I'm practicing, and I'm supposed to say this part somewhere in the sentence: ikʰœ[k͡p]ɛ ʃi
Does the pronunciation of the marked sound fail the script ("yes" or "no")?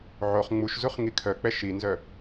no